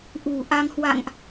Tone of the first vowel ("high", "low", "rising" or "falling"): low